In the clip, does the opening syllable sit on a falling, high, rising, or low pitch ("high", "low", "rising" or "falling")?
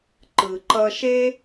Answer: low